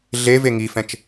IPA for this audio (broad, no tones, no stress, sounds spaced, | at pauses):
ɮ e v e ŋ i f ɛ̃ t͡ʃ